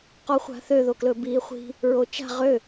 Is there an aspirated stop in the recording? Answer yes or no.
no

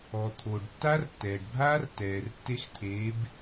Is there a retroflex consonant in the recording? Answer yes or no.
yes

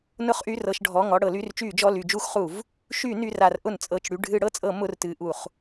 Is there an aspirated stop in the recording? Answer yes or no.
no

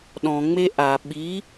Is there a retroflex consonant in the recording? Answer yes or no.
no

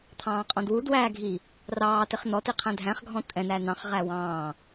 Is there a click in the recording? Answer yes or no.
no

